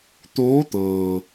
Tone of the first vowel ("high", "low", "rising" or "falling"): rising